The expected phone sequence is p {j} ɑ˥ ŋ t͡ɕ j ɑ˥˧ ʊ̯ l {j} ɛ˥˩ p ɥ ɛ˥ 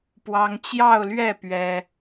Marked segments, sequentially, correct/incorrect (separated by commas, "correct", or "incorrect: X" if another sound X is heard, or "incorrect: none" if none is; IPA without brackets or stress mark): incorrect: w, incorrect: ɥ